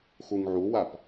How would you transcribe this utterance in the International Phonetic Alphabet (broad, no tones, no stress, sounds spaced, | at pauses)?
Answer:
x u ŋ ʕ u w a p